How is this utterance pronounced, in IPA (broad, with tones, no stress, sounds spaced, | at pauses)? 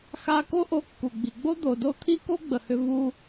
x a˧ k o˥ ʔ o˧ kː u˩ ɡ͡b i˩ ɡ͡b o˥ d̪ o˩ d o˥ t̪ʰ i˥ k o˥ ɡ͡b ə˩ h ʏ˧ v u˧